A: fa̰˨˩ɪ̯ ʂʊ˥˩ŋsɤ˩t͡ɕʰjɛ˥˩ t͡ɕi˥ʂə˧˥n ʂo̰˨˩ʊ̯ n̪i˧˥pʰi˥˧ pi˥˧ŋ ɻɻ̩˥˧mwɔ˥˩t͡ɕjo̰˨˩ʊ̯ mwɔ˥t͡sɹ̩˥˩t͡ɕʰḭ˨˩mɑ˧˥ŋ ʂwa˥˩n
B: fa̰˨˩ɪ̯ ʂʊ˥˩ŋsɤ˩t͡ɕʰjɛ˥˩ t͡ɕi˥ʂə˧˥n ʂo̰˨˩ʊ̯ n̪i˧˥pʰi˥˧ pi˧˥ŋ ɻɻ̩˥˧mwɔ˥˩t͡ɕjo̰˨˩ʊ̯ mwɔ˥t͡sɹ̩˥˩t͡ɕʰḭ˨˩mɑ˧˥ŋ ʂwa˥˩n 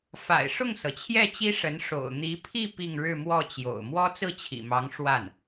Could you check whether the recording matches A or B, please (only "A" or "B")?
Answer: A